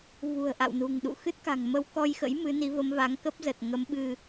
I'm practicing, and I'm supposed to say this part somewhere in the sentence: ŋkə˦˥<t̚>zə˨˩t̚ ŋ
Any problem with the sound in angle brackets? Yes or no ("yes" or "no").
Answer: yes